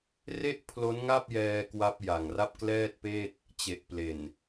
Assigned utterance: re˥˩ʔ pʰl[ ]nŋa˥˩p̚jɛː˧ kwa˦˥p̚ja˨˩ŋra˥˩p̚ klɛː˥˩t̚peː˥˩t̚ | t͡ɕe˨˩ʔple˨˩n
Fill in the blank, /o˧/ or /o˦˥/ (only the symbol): o˦˥